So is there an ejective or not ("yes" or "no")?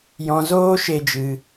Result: no